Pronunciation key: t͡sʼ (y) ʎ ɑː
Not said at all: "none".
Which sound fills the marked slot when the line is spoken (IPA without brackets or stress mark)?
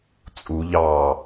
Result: u